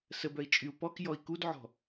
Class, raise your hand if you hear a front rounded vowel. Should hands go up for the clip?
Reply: yes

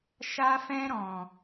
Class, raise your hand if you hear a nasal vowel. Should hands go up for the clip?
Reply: yes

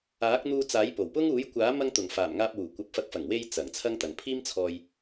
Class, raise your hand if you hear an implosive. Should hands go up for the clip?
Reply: no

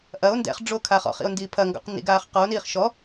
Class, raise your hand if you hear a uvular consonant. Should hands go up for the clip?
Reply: yes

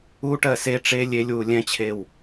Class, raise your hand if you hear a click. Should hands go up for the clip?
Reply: no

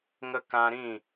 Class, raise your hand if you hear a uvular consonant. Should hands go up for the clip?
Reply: no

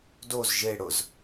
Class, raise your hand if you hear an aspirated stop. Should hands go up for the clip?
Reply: no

